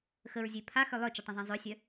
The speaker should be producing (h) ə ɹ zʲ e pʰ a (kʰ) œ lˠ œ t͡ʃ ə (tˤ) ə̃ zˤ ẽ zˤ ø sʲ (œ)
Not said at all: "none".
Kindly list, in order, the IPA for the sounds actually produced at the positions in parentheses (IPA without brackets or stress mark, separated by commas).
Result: x, x, tˤ, œ